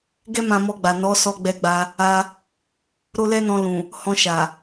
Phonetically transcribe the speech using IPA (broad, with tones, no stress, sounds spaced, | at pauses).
ɡ ɛ˦ m ã˧ m ɔ˧ ɡ͡b a˨ n ɔ˨˦ s ɔ˧ ɡ͡b ɛ˧ ɡ͡b a˧ | a˧ | ɾ o˦ l ɛ˦ n ɔ̃˧ l ũ˨ | h ɔ̃˧ ʃ a˨